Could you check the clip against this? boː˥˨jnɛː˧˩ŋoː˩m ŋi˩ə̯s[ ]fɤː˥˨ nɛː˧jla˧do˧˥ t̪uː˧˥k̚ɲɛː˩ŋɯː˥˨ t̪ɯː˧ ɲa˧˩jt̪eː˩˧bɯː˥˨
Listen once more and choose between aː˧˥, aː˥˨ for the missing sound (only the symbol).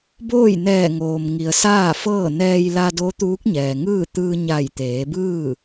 aː˥˨